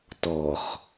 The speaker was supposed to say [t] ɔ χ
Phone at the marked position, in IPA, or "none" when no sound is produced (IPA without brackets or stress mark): t